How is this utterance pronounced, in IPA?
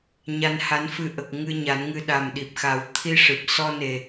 ɲ a˧ n h a˧˥ n f ɨ˧ ʔ ə˨˩ k̚ ŋ ɨ˧ ɲ a˨˩˦ n ŋ ɨ˧ ɗ a˨˩ m ɗ i˨˩ p̚ x a˨˩˦ w t̪ʰ i˧ ʂ ɨ˨˩ p̚ s ɔ˧ n e˨˩

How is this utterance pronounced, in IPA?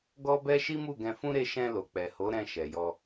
ɡ ɔ˦ b ɛ˦ ʃ i˦ m u˦˨ ɡ ɛ̃˧ f ũ˦ ɾ e˧ ʃ ɛ̃˧ l o˨ k͡p ɛ˨ h o˨˦ ɾ ɛ̃˧ ʃ ɛ˨ j ɔ˧

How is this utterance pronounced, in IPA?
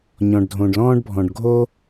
ɲ ɔ̃˩ ɖ dʱ õ˩ ɖ l ɔ̃ː˥ ɖ bʱ ɔ̃˩ ɖ ɡʱ o˥

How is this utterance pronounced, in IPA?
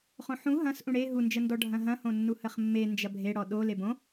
χ õ ħ ũ ɦ ɐ̃ s ʔ ũ ɽ e ɦ u n d͡ʒ ə n d ɔ ɖʱ ɐ̃ ɦ ɐ̃ h õ nː u h ə χ mː e n d͡ʒ ɐ bʱ e ɽ ɔ ɗ o l e b õ

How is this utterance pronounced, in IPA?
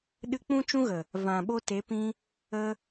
ɗ ɨ˧ k͡p ũ˦ t͡ʃ ũ˦ ɣ ə˨ | v ã˨ ɓ o˧ t e˨˦ p ĩ˧ | ə˧

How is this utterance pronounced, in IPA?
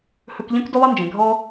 h ɵ˧ k ʎ œ̃˦ k d ɵ˦ lˠ e˦ n d͡ʒ ẽ˨ ɡʱ ɔ˦

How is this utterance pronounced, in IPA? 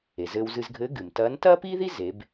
e˩ z ɘː˧ w z ɨ˧ z ɡʱ ɘː˧˥ ɡ ɨ˩ m t ɐː˧˥ n t ɐː˥ p iː˥ ð i˥ z e˩˧ b

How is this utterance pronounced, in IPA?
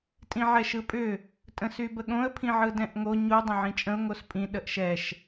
tʼ ĩ ʕ ɛ ʃ ɯ pʼ ʏ | tʼ ə̃ s y b ə ɠ õ ə̯ pʰ ĩ ʕ ɯ d ɛ̃ ʔ ŋ o ɲ u dˤ ə̃ ʕ ĩ t͡ʃʼ ə̃ ʊ̯ ŋ o s pʼ ĩ ɗ ə ʔ ʃ ɛ ʃ

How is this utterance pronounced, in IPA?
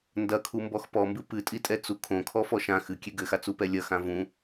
n d ɐ kʰ u m b ɔ x p ɔ m b ɨ p ɨ tʼ i tʼ ɛ t͡s u kʰ õ kʰ ɔ f ɔ ʃ ã x ɨ kʲ e ɡ ɘ x a t͡s u p ɛ lʲ ɐ x ã v ũ

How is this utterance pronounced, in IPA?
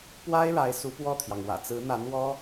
p w a˥ ɪ̯ ɻ a˧˥ ɪ̯ s u˧˥ p w ɔ˥˩ t̪ʰ j ɑ˩ ŋ w ä̰˨˩ t͡s ɹ̩˧˥ n̪ a˧˥ n w ɔ˥

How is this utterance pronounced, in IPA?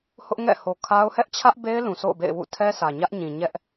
h ʊ˦ ʔ ŋ ɛ̰˦˨ h o˨ kʰ a˦ ʊ̯ h ɛ˦ ʔ t͡ɕʰ ä˦ ʔ b e˦ ɪ̯ l ũ˨ sʰ o̰˦˨ ʊ̯ b ḛ˦˨ ɪ̯ w ṵ˦˨ tʰ ɛ˦ s ä˨ ɲ ä˦ ʔ ɲ ĩ˨ ɲ ɛ˦ ʔ

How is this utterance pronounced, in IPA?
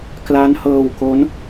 k l a˦˥ n h ɤː˧ w k o˦˥ n

